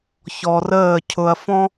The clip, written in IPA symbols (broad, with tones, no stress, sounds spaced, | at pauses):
ç ɔ˧ r əː˥˧ cʰ ʊ˧ ɐ̯ f ɔ̃˥